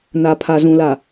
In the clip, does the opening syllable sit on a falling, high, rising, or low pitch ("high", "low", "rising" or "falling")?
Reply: low